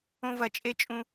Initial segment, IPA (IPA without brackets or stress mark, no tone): õ